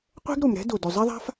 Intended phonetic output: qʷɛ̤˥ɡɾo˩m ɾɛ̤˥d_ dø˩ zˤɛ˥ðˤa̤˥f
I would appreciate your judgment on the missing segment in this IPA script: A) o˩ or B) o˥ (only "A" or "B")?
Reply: A